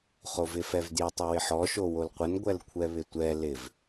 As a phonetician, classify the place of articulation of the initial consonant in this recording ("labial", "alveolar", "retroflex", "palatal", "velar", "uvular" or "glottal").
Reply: uvular